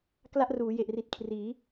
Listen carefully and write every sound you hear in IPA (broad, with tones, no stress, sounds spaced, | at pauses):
k l a˥˩ ʔ r uː˩˦ j e˨˩ ʔ r i˨˩ t̚ kʰ r iː˩˦